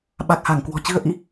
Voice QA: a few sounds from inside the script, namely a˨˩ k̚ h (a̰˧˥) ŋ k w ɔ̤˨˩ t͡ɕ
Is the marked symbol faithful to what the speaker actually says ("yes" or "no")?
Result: no